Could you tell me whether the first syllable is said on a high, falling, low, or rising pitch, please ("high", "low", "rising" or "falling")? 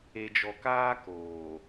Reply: low